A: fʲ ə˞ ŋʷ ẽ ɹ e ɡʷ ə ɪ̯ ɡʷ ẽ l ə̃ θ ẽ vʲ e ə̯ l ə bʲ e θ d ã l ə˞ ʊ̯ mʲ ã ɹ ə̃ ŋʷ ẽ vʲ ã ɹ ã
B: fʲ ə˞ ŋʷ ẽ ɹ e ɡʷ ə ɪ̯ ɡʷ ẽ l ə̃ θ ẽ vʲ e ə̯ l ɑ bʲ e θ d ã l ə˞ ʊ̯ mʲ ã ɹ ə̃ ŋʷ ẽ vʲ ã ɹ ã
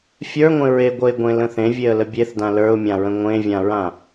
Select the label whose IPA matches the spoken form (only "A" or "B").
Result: A